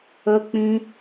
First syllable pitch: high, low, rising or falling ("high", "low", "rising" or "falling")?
high